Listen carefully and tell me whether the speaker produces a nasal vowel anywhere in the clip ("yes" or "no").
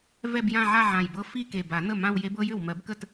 yes